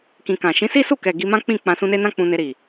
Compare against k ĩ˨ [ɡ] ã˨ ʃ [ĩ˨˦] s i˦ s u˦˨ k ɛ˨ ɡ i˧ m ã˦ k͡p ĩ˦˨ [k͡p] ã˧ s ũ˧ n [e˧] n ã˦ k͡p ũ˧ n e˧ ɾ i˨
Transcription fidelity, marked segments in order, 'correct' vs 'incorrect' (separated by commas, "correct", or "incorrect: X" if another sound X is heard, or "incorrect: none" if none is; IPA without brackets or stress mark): incorrect: k, correct, correct, incorrect: e˦